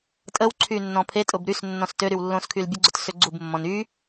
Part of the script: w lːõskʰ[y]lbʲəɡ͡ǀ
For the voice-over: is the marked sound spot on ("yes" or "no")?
yes